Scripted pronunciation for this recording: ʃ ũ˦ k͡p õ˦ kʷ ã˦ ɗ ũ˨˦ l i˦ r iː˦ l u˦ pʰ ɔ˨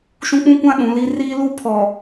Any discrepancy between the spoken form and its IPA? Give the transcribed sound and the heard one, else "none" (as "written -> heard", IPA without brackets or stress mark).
õ˦ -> ũ˦